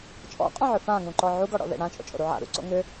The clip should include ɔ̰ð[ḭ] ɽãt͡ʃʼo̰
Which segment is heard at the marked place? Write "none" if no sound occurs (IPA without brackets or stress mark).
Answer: ḛ